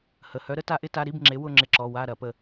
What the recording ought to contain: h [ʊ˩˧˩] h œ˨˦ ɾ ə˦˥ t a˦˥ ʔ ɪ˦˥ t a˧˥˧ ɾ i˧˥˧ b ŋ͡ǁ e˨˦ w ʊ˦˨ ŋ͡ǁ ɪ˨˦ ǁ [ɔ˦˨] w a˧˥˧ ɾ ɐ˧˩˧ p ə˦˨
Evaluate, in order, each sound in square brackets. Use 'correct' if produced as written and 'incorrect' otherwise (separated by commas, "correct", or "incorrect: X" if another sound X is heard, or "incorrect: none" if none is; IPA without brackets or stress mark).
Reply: incorrect: ə˩˧˩, incorrect: ɔ˩˧˩